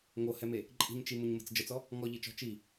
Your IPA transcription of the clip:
ŋ o h ɛ m e | ǃʼ i̤ ɲ t͡ʃ i m ʊ ɲ m ə̤ t͡s d͡ʒ ə t͡s ɔ | ŋ ɔ ʎ i t͡ʃ ɔ̤ t͡ʃ i

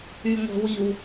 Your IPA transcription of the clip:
y ŋʷ ə̤ w i w

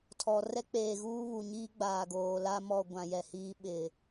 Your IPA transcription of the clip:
tʰ ɔ˨ r ɛ˦ k͡p eː˨ ɣ uː˦ β u˨ ɲ iː˦ ɡ͡b aː˨ ɡ oː˨ l a˦ m ɔ˦˨ ɡʷ ã˨ j ɛ˨ h iː˦ ɓ ɪ˨

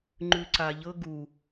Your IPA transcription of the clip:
ŋ͡ǃ ʉ ǀ a ʎ ɤ ɡ u

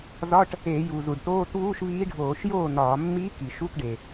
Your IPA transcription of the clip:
z ɒ˧˥˧ ʈ | e˧˩˧ j u˩ z u˩ ɖ t oː˧˥˧ t v uː˧˥˧ ʃ v iː˧˥ ɖʱ oː˧˩˧ ʃ j oː˥˩ n ɒː˧˩˧ mː i˧˥ k i˩ ʃ u˧˥˧ t ɖ e˩

